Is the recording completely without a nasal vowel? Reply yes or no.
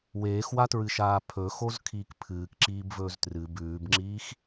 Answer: yes